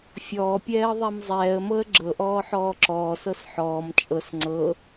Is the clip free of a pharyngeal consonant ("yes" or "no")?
no